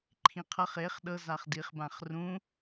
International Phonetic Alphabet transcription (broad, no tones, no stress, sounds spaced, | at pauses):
ǃʰ ĩ qʰ ʌ χ e χ ɗ ɤ z a χ d i χ b ã χ r ũ